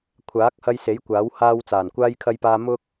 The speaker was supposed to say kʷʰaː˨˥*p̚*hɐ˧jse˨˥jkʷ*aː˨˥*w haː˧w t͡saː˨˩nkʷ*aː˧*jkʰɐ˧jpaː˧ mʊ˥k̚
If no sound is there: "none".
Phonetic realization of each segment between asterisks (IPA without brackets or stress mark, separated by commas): k̚, aː˨˥, aː˧